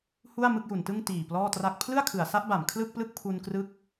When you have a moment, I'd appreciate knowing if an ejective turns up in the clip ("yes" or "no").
no